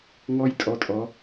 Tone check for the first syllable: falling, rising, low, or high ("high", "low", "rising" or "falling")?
high